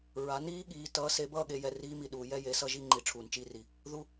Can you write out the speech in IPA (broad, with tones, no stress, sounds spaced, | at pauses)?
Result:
ɹ a˨˦ n iː˦˥ ɠ iː˨˦ t ʌː˨˦ s e˨˦ b ʌː˥˧ ɠ e˨˦ j ɛ˨ r iː˦˥ m i˨ ɗ uː˨ j ɛ˥˧ j e˨˦ s ʌ˥˧ ʒ i˥˧ ŋ͡ǃ i˨ ʈ͡ʂʰ uː˨ n t͡ʃ i˦˥ r i˨ | ð u˦˥